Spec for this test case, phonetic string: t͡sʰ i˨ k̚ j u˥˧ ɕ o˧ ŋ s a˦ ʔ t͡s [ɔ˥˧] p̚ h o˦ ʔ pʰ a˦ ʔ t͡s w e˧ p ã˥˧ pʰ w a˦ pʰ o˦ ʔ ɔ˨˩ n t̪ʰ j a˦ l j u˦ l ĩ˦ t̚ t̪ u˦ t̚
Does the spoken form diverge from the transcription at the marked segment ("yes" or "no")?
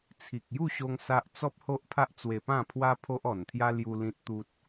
yes